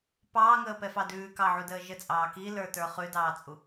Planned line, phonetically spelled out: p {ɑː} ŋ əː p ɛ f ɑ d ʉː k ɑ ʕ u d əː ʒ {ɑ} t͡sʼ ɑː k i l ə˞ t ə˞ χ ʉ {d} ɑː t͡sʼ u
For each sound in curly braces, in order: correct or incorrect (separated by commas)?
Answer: correct, incorrect, correct